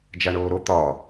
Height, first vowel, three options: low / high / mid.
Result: low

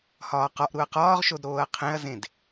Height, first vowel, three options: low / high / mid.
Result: low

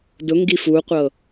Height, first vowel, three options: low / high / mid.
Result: high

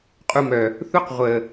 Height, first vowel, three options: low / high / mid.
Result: high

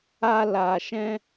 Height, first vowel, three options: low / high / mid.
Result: low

